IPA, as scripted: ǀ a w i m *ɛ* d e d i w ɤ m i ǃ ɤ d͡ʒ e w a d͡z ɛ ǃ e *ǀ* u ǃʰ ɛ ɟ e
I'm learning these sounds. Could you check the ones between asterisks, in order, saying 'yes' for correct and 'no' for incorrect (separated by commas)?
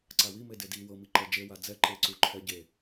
no, yes